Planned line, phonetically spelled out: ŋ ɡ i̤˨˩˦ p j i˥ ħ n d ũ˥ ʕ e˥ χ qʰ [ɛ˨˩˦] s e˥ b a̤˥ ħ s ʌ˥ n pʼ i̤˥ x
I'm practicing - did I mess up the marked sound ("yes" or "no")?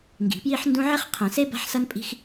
yes